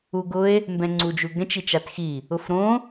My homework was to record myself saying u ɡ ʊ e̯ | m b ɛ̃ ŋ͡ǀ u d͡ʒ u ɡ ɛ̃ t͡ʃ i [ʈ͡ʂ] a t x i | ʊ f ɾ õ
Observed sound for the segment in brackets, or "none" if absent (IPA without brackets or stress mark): t͡ʃ